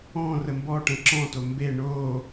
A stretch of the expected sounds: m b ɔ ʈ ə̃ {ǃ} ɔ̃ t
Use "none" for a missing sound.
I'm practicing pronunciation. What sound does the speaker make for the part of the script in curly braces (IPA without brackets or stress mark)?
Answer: ǁ